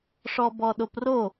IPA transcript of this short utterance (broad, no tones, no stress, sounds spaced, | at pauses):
ʂ ɔ b ɔ ɗ o p r o